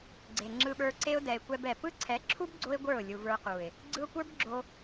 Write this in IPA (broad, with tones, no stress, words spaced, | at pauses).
ɡ͡ǀe˨ŋ͡ǁɯ˧ɓə˞˧ǀe˦ʊ̯ dɛ˧ɪ̯kʷɛ˦bɛ˨ pɯ˦ǀʰɛ˨˦ǁʰu˦b ɡ͡ǀo˦ɪ̯ ɡʷə˞˦˨ʊ̯ lʲu˨və˞˧qu˨ɪ̯ | ɡ͡ǀɯ˧ʊ̯kʷə˞˦bɡ͡ǁo˧